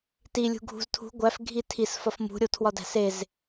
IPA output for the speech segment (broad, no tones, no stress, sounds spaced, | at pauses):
t i lʲ ṳ ɡʱ ṳ z tʰ ṳ ɡʷ æ f ɡʱ i tʰ i s f ɒ f m ṳ ɾʲ o tʰ w ɒ d æ̤ s e z